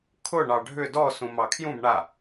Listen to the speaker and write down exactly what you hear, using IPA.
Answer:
kʰʊ ɳɑɖʱʏ dɔsũ mɑkʰjũb ɳa

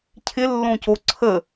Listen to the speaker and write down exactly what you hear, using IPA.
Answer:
cʰɪlːõco ǀʰə

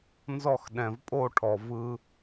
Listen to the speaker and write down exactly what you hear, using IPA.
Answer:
nzɔ˦˨xɗɛ̃˨vpʼo˦˨ʈʰɔ˨ vɯ˧

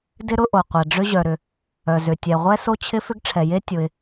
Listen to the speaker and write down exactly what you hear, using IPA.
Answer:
dɪ˥ɾʊ˥ʔo˩qʷɛ˩ ɖ͡ʐʏ˥ʑœ˩ɾʏ˩ | œ˩zʏ˩tʲɛ˩ ʁʷɛ˥so˥t͡ɕʰɪ˥ fʏ˥ɡʈ͡ʂʰɛ˩je˥ tʲʊ˩ɪ̯

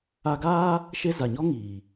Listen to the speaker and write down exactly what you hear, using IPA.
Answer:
a˧ɡaː˦ | ʃe˦ za˨ɲɔ˦ ŋiː˨

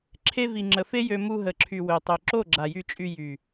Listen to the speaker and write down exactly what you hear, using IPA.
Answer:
ǁʰe˧vi˨ ŋ͡ǁə˨fe˦jø˧ mu˧ɦə˨ǁʰy˨ wø˨tˤø˨ ǁo˦˨ɡ͡ǁa˨jy˧t͡ʃʼy˧ jy˨

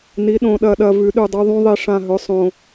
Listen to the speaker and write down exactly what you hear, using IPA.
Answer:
ni˩˧ɗõ˨˩ɗɐ˨˩ɗɐ˨˩ vʉ˩˧ɗʉ˨˩dˤu˩˧ ðˤũ˩˧ðˤi˨˩ ʂã˨˩ɦɵ˩˧sˤõ˨˩

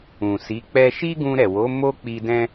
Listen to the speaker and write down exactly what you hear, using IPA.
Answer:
ũ˨si˨˦k͡pɛ˦ ʃi˦ɡũ˧ɾɛ˨wo˨˦ mo˦k͡pi˧dɛ̃˦

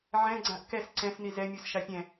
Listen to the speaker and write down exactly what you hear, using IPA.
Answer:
ʕɛ̃ɡ͡ǀãʔ kɛs ǀɛ̃sni zɛmʲus ʃapʲɛ̃

